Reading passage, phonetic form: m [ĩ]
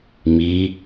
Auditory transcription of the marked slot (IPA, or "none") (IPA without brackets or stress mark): i